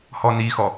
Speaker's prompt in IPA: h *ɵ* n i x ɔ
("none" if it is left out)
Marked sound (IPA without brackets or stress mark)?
ɔ